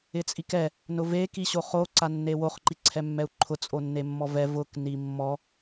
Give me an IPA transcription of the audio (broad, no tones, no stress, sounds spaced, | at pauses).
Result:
ɪ t͡sʼ i k ɛ | n ʊ v e k i ɕ o χ o ǀ a nː e w o χ ǃ i ǀʰ ɛ mː ɛ u̯ ǃʰ ʊ t͡sʼ o nː e mː ɔ v ɛ v ʊ k n i mː ɔ